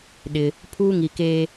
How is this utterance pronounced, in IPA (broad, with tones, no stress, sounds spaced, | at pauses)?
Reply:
ɗ ɪ˨ | pʰ uː˦ ŋ i˨ k eː˦